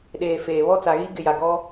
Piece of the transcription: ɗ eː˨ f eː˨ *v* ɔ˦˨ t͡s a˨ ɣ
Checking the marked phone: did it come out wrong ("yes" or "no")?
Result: yes